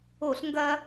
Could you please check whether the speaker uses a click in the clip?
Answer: no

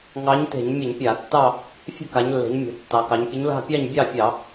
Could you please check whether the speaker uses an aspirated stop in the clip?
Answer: no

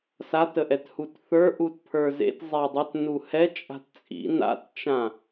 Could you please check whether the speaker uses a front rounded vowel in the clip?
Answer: yes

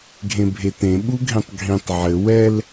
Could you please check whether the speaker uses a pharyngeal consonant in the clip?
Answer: yes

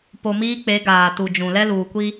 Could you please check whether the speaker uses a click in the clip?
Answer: no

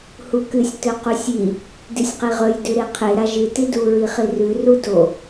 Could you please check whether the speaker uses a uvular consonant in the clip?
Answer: yes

